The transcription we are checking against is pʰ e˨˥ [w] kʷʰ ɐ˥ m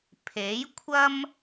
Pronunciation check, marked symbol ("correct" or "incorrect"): incorrect